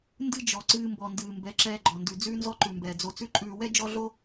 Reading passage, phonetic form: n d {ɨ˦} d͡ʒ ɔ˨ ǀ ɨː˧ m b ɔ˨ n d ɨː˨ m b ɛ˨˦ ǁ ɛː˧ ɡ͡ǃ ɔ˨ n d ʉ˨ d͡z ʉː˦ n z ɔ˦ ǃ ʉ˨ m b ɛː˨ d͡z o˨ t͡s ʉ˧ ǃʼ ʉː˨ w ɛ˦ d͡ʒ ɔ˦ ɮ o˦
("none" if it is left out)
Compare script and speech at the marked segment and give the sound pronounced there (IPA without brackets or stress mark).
ɨ˦